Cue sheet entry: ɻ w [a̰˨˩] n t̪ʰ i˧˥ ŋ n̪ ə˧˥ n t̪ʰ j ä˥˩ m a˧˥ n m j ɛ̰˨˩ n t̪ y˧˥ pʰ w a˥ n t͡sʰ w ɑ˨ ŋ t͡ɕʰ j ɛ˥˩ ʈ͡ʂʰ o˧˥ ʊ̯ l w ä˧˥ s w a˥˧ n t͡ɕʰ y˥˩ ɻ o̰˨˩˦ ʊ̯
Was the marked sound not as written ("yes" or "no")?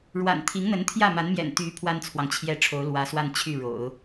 no